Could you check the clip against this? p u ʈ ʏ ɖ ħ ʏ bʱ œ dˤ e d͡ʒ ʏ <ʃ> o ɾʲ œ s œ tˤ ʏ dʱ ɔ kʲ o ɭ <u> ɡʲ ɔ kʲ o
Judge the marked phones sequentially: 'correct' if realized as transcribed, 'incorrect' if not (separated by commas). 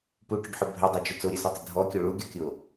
incorrect, correct